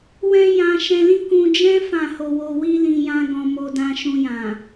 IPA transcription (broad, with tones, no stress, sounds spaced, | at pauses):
w ɛ̃˦ j ã˧ ʃ ɛ̃˧ l ĩ˦ k ũ˧ d͡ʒ ɛ̃˦ f ã˦˨ h o˧ w o˧ w i˦ l ĩ˧ j ã˦ ɡ ɔ̃˧ m o˧ d ã˧ ʃ ũ˧ j ã˨